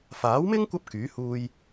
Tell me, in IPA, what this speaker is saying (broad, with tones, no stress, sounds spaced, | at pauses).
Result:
f aː˨˥ w m ɪ˥ ŋ kʷ ɐ˥ p̚ k yː˨˥ h uː˧ j